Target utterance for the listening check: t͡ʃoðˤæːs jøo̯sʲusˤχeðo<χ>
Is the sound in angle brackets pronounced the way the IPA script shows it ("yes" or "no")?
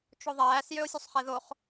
yes